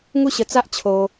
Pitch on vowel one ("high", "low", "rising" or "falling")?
falling